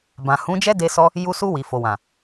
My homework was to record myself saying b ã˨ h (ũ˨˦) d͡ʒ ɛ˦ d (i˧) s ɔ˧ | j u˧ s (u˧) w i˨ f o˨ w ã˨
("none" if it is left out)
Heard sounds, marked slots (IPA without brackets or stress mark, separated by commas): ũ˨˦, e˧, u˧